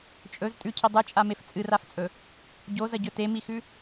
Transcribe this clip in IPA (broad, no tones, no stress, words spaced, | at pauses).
t͡ʃʼɵz tʼʉcʰi dˤɨt͡ʃʼamef t͡sʼɨraft͡sʼɵ | ɟozɐɟɵ temixʉ